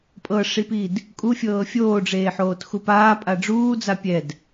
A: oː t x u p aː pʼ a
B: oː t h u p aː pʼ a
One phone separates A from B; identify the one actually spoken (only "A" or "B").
A